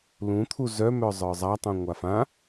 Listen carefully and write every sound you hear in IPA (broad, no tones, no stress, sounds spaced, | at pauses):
l ũ t̪ʰ u z œ m œ zˤ ə˞ zˤ a tˤ ũ ŋʷ a f ã